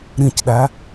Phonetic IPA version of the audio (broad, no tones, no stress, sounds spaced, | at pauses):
ɾ ĩ c ɗ æ